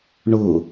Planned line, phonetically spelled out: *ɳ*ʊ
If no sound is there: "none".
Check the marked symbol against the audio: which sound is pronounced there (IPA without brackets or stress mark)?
ɳ